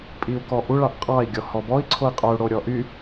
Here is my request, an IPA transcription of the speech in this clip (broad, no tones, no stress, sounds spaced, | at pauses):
pʼ i u̯ k ɔ ʔ u ɭ ɑ ʔ qʼ ɑ i̯ ɡʲ ɔ h ɔ b ɔ i̯ ǀʰ o i̯ qʼ o u̯ ɽ o ɾʲ ɔ ʔ y